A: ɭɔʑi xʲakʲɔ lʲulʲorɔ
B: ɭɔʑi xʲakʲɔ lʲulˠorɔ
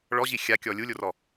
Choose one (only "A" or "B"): A